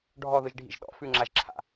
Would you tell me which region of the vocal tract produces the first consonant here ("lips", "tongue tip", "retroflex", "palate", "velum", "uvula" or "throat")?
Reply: retroflex